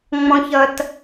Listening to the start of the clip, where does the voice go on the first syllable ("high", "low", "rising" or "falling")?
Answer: low